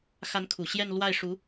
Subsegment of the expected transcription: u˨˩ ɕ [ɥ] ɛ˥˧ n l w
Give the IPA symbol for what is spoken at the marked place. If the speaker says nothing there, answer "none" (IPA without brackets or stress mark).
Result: j